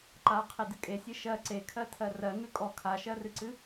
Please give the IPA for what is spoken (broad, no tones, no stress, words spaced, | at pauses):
ǃaqʰedɨ kʼesʲe ʃɜ ǀekʰɜtʰɜ rɜŋʉ kʼɔ kʰaʃɜrɨǀɨ